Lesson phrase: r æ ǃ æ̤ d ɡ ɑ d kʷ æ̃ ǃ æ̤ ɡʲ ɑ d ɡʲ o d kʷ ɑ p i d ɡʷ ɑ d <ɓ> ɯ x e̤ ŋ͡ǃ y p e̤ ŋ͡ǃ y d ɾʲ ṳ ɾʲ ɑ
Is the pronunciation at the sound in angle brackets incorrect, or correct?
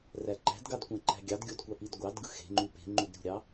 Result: incorrect